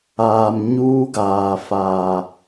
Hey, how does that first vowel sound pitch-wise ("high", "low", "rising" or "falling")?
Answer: low